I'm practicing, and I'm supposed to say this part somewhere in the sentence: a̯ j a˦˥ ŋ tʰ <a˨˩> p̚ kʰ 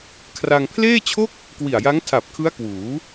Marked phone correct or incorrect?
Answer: correct